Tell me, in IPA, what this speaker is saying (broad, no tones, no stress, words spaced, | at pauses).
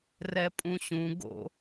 rɛpʼũɕũ ɡo̰